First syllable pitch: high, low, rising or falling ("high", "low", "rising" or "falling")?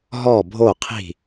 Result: falling